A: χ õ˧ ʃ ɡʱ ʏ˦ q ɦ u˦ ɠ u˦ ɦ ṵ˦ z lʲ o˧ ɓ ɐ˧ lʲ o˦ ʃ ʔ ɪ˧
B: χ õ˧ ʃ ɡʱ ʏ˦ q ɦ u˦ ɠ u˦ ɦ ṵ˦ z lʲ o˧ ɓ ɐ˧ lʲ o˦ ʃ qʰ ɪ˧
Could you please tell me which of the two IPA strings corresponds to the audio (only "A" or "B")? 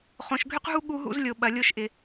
A